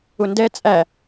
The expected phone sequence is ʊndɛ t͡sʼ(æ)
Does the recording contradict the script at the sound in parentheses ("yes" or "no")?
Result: no